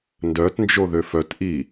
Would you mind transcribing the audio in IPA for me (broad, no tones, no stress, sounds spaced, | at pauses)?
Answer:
n d œ t n d͡ʒ o ð ø f œ t ʔ i